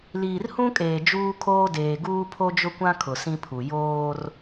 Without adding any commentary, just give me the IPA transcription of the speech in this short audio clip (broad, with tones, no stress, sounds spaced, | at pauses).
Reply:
l iː˨ r h ũ˦ kʼ eː˨ d͡ʒ uː˦ kʰ oː˦ d eː˨ ɡ uː˦ pʰ o˦ d͡ʒ ʊ˦ kʷ ã˦ kʰ ʊ˨ s ĩ˦ pʰ u˨ j oː˦ r